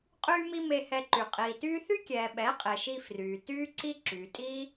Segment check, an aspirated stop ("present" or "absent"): absent